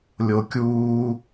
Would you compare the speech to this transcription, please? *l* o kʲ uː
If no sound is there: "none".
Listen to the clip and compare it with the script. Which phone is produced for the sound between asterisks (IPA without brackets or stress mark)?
lʲ